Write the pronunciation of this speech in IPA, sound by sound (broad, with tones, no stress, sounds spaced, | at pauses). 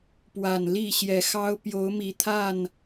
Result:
p w a˨˩ n l i˥˨ ɕ j ɛ˨˩ x ɑ˦ ʊ̯ p j o˨˦ ʊ̯ m i˨˩ t̪ʰ a˥˨ n